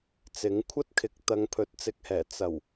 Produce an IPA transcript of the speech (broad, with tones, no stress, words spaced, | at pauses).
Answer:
t͡sɪ˨˥ŋkʷʰɐ˥t̚kʰɪ˨˥k̚ t̪ɐ˨˧ŋpʰɵ˨˥t̚t͡sɪ˨˥k̚hɛː˨˩ t͡sɐ˨˩w